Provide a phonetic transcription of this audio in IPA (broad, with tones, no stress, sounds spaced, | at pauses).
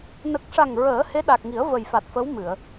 n ə˨˩ k̚ ʂ a˨˩ ŋ ɹ əː˨˩˦ h e˧˥ ɗ a˨˩ k̚ ŋ i˨˩˦ ə̯ v ə˨˩ j f a˨˩ t̚ f ə˧˥ w m ɨ˨˩˨ ə̯